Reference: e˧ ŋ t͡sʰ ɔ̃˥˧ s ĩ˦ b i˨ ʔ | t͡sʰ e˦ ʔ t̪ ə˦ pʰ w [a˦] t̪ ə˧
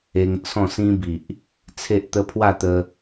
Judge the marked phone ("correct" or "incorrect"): incorrect